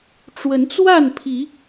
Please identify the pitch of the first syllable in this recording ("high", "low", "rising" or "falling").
rising